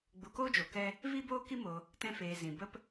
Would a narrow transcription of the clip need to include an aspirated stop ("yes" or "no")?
no